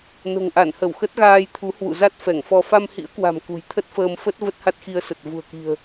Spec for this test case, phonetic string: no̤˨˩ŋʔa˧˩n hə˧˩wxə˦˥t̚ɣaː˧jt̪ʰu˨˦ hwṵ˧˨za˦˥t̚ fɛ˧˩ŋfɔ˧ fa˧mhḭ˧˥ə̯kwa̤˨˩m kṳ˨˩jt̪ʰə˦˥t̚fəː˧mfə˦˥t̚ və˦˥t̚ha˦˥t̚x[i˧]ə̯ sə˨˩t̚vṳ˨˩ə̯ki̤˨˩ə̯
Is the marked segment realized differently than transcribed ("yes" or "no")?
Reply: no